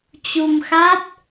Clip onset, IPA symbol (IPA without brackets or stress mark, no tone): t͡ɕ